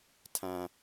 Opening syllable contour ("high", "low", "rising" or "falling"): high